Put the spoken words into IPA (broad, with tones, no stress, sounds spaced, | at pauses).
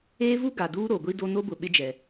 eː˦ v u˦ ɡ a˨ d uː˦ ɾ o˨ ɡʷ i˦ d o˦ n o˦ b ʊ˨ ɓ ɪ˦ d͡ʒ ɛ˨